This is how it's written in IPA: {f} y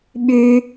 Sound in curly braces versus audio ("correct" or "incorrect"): incorrect